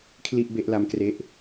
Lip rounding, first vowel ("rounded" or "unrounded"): unrounded